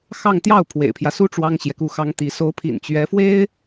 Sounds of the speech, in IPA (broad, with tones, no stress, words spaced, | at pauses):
xɑ˥˧ŋ t̪jɑ˥˩ʊ̯ pʰwḛ˨˩ɪ̯pʰjä˦su˥ ʈ͡ʂwɑ˥ŋɕjɛ˨ku˥˩ xɑ˥ŋt̪i˧˥ so˧˥ʊ̯pʰḭ˨˩n t͡ɕɥɛ˧˥fwe˥ɪ̯